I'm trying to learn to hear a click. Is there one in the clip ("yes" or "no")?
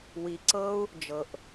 yes